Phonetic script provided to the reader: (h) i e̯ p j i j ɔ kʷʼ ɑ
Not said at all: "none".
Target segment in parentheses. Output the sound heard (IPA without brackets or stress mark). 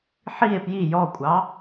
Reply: ħ